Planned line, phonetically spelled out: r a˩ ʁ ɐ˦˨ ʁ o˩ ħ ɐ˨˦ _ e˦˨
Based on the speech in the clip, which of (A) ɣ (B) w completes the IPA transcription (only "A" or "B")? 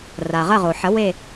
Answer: B